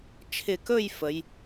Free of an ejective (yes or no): yes